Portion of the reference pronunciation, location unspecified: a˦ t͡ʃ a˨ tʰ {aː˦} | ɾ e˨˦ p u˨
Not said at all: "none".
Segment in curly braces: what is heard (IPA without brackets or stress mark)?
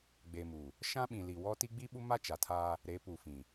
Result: aː˦